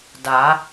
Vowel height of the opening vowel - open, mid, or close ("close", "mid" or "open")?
open